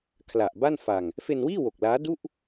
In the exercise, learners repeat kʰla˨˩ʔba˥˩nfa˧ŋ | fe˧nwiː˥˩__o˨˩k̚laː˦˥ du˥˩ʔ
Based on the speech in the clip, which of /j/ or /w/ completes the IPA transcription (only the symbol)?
w